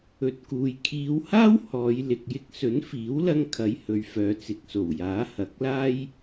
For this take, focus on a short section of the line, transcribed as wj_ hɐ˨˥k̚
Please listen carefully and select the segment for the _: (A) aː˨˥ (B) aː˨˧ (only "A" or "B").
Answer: A